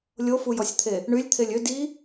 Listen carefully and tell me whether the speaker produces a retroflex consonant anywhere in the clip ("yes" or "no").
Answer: yes